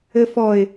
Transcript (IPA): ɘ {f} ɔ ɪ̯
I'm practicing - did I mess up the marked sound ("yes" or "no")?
no